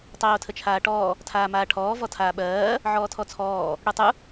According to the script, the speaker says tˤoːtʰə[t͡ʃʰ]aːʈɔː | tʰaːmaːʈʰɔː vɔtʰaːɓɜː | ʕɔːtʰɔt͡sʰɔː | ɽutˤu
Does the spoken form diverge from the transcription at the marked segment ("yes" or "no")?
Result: no